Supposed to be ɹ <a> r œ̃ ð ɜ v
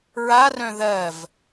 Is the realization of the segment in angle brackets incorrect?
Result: no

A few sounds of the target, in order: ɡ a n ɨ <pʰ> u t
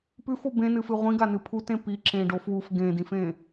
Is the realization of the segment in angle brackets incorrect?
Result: no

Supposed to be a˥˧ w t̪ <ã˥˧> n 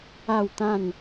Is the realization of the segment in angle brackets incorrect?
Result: no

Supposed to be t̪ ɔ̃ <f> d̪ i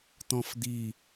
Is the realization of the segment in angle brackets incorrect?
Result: no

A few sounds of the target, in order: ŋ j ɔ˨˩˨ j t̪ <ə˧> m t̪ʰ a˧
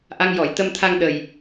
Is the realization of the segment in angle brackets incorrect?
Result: no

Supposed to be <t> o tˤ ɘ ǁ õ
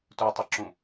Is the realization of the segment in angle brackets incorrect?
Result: no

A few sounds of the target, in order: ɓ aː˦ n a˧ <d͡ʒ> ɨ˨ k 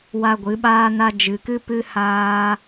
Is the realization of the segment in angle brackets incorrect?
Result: no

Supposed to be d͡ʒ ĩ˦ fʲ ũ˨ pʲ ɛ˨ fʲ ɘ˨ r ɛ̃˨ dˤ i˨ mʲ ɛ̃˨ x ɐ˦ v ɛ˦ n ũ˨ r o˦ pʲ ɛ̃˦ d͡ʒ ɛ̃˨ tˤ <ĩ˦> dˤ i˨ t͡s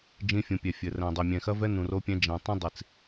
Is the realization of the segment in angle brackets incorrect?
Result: no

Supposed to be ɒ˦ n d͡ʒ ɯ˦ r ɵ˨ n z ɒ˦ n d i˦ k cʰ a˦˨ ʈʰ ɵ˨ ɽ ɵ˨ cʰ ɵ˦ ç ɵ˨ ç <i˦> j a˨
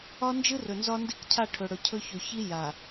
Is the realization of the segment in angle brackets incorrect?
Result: no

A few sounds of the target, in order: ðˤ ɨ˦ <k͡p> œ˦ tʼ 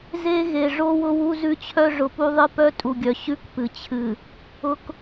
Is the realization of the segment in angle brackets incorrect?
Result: yes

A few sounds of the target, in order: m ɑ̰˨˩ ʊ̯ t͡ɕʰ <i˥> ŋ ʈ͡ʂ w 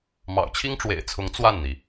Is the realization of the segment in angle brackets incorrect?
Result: no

